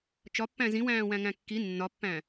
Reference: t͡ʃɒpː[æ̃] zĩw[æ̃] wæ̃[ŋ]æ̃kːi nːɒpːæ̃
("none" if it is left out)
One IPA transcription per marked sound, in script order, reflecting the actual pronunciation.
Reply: æ̃, æ̃ː, ŋ

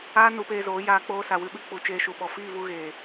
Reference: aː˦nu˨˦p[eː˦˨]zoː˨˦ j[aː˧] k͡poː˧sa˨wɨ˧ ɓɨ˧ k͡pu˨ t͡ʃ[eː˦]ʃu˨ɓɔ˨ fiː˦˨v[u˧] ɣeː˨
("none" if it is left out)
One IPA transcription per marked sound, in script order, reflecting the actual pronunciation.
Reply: eː˧, aː˧, eː˧, u˧

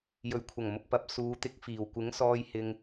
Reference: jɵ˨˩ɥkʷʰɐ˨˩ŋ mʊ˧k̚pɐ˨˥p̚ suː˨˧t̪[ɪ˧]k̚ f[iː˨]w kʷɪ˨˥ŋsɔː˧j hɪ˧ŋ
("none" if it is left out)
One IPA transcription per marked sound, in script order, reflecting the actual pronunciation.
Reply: ɪ˧, iː˨

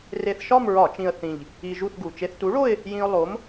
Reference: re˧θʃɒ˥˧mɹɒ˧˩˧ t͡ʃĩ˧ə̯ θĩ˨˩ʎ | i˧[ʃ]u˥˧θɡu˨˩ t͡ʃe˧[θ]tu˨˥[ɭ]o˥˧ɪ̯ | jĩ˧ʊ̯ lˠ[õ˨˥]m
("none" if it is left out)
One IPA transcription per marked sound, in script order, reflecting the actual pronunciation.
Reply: ʒ, θ, ɭ, o˨˥

